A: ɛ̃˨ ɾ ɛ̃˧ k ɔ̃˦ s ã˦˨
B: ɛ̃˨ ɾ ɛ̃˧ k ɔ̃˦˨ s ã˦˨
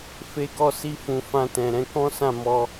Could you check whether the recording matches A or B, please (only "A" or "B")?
A